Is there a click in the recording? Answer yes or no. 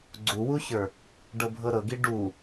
yes